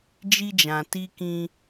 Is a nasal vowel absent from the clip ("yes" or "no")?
no